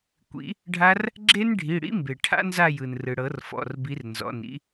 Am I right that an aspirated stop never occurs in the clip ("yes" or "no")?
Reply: no